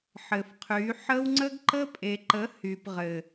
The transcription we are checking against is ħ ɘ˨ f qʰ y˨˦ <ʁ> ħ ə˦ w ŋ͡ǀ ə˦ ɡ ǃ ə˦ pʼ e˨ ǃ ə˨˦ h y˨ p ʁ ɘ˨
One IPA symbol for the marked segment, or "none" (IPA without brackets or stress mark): none